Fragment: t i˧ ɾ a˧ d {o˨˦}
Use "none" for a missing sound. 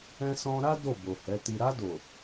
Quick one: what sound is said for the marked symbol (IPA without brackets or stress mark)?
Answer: o˨